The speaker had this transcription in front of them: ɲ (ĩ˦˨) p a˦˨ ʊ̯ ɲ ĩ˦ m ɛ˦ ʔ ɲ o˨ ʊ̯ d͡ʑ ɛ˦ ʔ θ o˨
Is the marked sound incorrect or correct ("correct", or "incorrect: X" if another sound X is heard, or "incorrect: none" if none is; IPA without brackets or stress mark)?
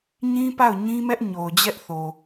incorrect: ĩ˦